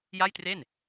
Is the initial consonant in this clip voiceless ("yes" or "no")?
no